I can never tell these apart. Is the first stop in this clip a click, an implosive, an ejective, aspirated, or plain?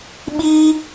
implosive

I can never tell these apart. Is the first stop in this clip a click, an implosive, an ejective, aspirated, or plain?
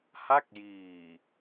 plain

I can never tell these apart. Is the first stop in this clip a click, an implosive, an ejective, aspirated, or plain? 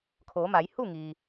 aspirated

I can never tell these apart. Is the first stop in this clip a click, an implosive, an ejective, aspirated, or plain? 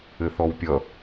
plain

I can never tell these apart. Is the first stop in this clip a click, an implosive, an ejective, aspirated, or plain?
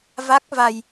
plain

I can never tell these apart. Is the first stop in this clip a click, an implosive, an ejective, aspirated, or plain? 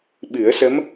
implosive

